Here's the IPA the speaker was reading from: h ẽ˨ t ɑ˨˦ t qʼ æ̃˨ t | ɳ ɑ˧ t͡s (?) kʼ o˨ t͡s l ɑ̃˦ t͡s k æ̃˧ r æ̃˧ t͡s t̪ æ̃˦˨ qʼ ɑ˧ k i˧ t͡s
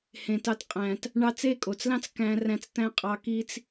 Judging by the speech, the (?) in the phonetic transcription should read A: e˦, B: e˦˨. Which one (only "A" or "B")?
B